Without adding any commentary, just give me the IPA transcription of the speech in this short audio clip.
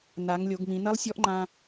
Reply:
n a˩˧ ŋ lʲ o˩˧ ɡ m ĩ˩˧ n ɐ˧˥ lˠ sʲ ɔ˧˥ ʔ ŋ͡ǃ ã˧

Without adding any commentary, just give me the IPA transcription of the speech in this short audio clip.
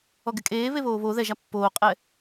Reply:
ɔ ɡ ɪ kʼ eː β e β oː β o ð ɛ ʒ a pː oː qʼ ɛ

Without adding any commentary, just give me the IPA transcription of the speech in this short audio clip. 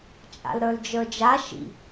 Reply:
t͡ʃʼ a̰ l ɾ ə˞ l d͡ʒ ə˞ d͡ʒ a ʃ ḭ

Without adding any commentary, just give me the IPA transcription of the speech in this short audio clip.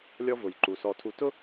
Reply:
lʲ ɔ˦ v ʊ˨ j ǃ u˨ s ɔ˨ tʰ u˨ t ʊ˦

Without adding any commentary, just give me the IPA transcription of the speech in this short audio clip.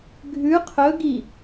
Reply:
ɡʱ ʉ qʰ ɵ ɡ i

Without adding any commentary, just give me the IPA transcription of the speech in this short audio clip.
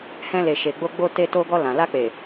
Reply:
h ɛ̃˧ l e˨ ʃ e˨ ɡ͡b o˧ ɡ͡b o˧ t e˧ t o˧ ɡ ɔ˧ l ã˨ l a˧ k͡p e˨

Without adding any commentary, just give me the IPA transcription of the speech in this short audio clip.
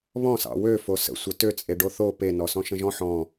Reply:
β ɔ̃ s ɑ̰ w ø f o s ə̰ sʷ ɘ t ø t͡sʼ e ɖ o θ o p e n ɔ s ɔ̃ ʃ ə̃ ʒ ɔ̃ ħ ɔ̃

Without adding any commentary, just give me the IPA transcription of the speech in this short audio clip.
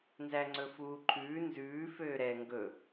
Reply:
n z æ ŋ͡ǀ ɵ f uː ǃʰ ʉː n z ʉː f øː ɾ ɛ ŋ ɡ ɵ

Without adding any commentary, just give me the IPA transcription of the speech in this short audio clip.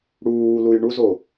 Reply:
ɽ uː l u j ɳ u z o

